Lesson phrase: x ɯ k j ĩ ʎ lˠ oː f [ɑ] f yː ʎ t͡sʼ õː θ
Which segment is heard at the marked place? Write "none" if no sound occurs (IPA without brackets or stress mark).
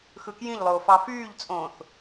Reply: ɑ